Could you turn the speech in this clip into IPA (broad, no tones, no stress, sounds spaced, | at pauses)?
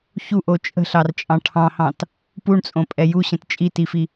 ç u ʔ o t͡ʃʼ ə̤ ɬ ɑ r t͡ʃʼ ɑ̃ ʈʰ ɑ̃ h ɑ̃ t | p u ɳ t͡sʼ õ pʼ ɛ j u ɕ ə̃ t t͡ʃʼ i t i f i